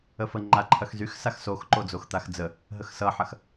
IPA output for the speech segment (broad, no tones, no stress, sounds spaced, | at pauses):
ə f ə ŋ͡ǃ a ǃʰ ɐ x z y x s a x s o x ǃ o d͡z o x t̪ a x d͡z ə | ɦ ə x s ʌ ħ ɐ x